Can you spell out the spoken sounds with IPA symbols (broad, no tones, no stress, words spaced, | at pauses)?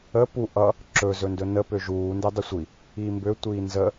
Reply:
ə pu ʔʌ | ǁɵ zɵndɵnə pøʒuː ndedˤəsʷi | iːmbø tʷiːnzə